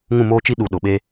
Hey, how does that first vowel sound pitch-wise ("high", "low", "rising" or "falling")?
falling